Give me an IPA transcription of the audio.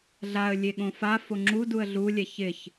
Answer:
ɮ a ə̯ lʲ e ɠ õ f a f o ŋ͡ǁ u d u ə̯ ɮ u lʲ ɛ ç ɪ ç

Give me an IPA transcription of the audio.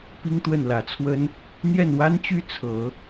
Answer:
p i˥ ŋ t̪ w ə˥˩ n l ä˨˩ t͡sʰ w ə˥ n | n̪ j ɛ˥˩ n w a˥ n t͡ɕ y˥ t͡sʰ ɤ˨˩˦

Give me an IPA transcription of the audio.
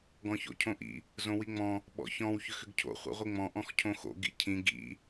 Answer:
ɡ ɔ̃ ç o̰ cʰ õ ʔ ḭ | z õ w i ŋ͡m ɔ̃ | ɓ ɔ̰ ç ɔ̃ w ç ʏ x ʏ ɡ cʰ o̰ χʷ ḭ ʁʷ i ŋ͡m ɔ̃ ʔ ɔ̃ x cʰ õ x o̰ ɡ ḭ cʰ ĩ ɡ ḭ

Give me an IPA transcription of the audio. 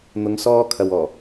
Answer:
n̪ ʊ˨˧ ŋ s ɔː˧ kʰ ɐ˨ w ɔː˨˩

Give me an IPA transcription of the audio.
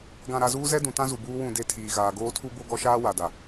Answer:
ɡ ã˨ ɾ a˨ z uː˦ z ɛ˦ d ũ˨ t ã˦ z u˨ b uː˦ w ũ˦˨ d e˦˨ tʰ iː˨ ɣ aː˨ ɡ oː˦ tʰ u˦ b o˦ ɡ ɔ˦ ʃ aː˦ w a˨ d a˨

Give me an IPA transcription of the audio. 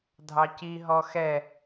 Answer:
dʱ ɑ c i ɦ ɔ x ɛ

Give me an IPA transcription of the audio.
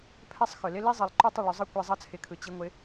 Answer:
pʰ ɛ˦ sˤ x ʏ˨ l ɪ˦ l i˦ zˤ ɯ˨ lˠ ǃ ʏ˦ tˤ ʏ˦˨ ɭ ʏ˨˦ zˤ ɯ˦ kʷ i˧ zˤ ʌ˦ t͡sʰ ɪ˨˦ kʰ ɯ˨ t͡ɕ i˧ ŋʷ ɪ˨˦

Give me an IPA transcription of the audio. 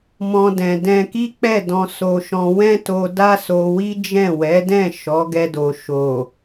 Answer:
m ɔ̃˦ d ɛ̃˧ d ɛ̃˧ k i˦ k͡p ɛ˦˨ d ɔ̃˧ s o˧ ʃ ɔ̃˧ w ɛ̃˦ t o˧ d a˦ s o˧ w i˦ d͡ʒ ɛ̃˦˨ w ɛ˨˦ d ɛ̃˦˨ ʃ ɔ˨˦ ɡ ɛ˧ d o˨ ʃ o˨

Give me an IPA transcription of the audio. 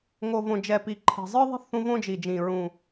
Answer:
ŋ o˨˩ v õ˨˩ d͡ʒ ɛ˨˩ p i˨˩ ǃʰ ɛ̤˨˩ zˤ ɯ˧ ðˤ e̤˧ θ ũ˧ v õ˧ d͡ʒ i˨˩ d͡ʒ ĩ˨˩ ɹ ũ˨˩

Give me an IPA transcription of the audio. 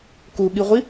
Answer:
k u ɠ i ʁʷ i

